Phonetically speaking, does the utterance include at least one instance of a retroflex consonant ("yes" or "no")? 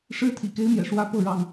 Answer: yes